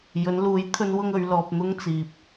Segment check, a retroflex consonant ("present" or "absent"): absent